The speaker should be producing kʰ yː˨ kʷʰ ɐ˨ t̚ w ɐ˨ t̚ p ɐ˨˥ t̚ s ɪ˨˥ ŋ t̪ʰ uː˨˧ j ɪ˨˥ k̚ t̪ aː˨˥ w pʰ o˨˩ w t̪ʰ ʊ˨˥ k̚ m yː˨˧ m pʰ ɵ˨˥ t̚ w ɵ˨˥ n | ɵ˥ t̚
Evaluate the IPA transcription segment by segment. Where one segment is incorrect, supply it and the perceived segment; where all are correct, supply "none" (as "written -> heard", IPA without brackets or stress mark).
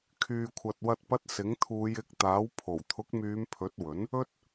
none